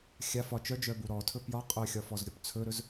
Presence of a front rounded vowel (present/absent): present